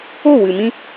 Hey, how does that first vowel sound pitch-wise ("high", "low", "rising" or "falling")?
falling